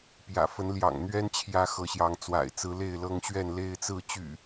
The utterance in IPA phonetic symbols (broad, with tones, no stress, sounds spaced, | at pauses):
p j ä̰˨˩ f ə˨˦ n l j ɑ̰˨˩ ŋ n̪ ɥ ɛ˦ n t͡ɕʰ j ä˦ x ɤ˨˦ ɕ j ɑ˨˦ ŋ t͡s w a̰˨˩ ɪ̯ t͡s ɹ̩˨˦ l e˥˨ ɪ̯ l ɤ˦ ŋ ɕ ɥ ɛ˥˨ n l e˦ ɪ̯ t͡s ɹ̩˥˨ t͡ɕ y̰˨˩